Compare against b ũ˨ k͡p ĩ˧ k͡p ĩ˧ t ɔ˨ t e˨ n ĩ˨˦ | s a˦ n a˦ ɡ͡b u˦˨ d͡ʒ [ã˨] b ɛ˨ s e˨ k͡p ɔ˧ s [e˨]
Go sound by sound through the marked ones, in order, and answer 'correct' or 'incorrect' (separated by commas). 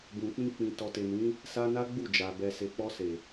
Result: incorrect, correct